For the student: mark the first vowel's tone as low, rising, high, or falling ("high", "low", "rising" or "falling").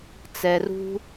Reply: low